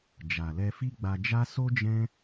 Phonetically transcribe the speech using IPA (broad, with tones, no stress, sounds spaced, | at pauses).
d͡ʒ a˨ l ɛ˧ f i˦ ɡ͡b a˧ d͡ʒ a˦ s o˦ d͡ʒ ɛ̃˦